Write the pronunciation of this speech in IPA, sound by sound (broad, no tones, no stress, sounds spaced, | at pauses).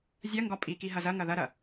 zʲ ɐ ŋ ɡ ɒ pʼ i k i ɦ ɐ z ɐ ŋ ɐ ð ɐ ɾ ɐ